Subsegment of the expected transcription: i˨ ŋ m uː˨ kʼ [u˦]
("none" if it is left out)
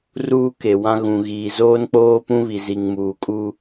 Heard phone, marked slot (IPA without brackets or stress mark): u˦